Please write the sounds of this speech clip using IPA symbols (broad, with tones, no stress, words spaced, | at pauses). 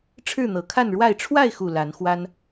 ʈ͡ʂʰɻ̩˥˨n̪ɤ˨˩kʰa˥˨nɻwa˥˨ɪ̯ ʈ͡ʂʰwa˥˨ɪ̯xu˨˩ la˨˦n xwa˦n